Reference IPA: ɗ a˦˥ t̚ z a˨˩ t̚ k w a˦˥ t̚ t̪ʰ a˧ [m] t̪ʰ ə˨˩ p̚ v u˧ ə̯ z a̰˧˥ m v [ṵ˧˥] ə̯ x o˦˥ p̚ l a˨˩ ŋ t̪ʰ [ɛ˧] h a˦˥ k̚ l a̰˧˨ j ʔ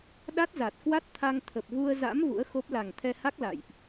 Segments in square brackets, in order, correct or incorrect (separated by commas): incorrect, correct, correct